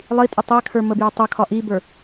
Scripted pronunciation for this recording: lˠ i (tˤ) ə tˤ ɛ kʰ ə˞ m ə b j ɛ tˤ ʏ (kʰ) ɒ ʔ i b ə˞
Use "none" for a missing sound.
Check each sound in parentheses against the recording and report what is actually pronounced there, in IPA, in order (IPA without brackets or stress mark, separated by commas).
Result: tʼ, kʰ